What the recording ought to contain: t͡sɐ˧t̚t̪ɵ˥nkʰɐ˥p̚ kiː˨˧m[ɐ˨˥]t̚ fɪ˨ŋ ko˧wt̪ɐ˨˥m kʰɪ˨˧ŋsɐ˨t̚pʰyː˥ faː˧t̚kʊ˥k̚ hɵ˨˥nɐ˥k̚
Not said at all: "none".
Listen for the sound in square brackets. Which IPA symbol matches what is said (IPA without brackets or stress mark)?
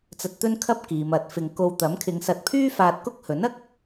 ɐ˨˥